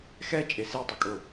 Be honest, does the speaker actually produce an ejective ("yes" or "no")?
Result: yes